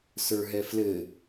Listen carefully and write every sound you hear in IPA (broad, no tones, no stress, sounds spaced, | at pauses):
s ə˞ ɦ ɛ f l ɘ